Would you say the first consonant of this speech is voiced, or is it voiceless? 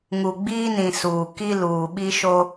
voiced